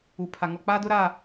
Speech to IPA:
u˨ pʰ a˨ ŋ ɔ˨ k͡p aː˦ d ʊ˦ ɾ a˦˨

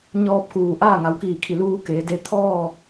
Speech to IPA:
ɲ ɔː˧ p̚ k uː˩ ʔ aː˥˨ ŋ a˩˧ w k iː˧˩ kʰ i˧˩ l uː˧ k eː˩˧ d e˧ t̪ʰ ɔː˥˨

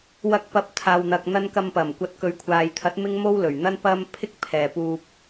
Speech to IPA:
w ɐ˧ k̚ p ɐ˨˥ p̚ t̪ʰ aː˨ w n̪ ɐ˨ k̚ n̪ ɐ˧ n k ɐ˧ m p ɐ˨˩ m kʷ ɐ˧ t̚ k ɵ˨ ɥ kʷʰ aː˨ j t̪ʰ ɐ˨˥ t̚ m ɪ˥ ŋ m o˥ w l ɵ˨˩ ɥ n̪ ɐ˥ n p ɐ˥ m pʰ ɪ˥ k̚ pʰ ɛː˨ p uː˧ p̚

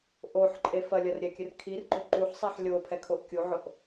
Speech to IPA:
ʔ o ħ ǃʼ e f ɐ lʲ ɐ r ɾʲ ɛ kʲ ɨ r kʰ i r ɡ͡ǃ o ǃ u ħ sˤ ɛ ħ lʲ o pʰ ɛ kʰ o ʔ kʲ u ʕ o ʔ

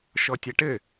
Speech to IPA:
ʃ ɔ tʲ a ʈ ɘ

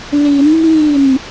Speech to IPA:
l i˨˦ n m i˥˨ n

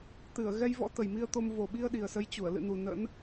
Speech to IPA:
t̪ ɨ˧˩ ə̯ ɣ ɛ˧ j v ɔ̰˧˥ t̪ ə˨˩ j m i˧ ə̯ t̪ o˧ m v o˨˩ ɓ i˧ ə̯ ɗ i˨˩ ə̯ s ə˨˦ j t͡ɕ u˧˩ ə̯ l ɨ̰˧˨ n u˨˩ n ə̰˧˥ n

